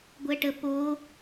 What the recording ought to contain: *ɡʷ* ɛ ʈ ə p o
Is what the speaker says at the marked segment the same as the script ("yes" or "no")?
yes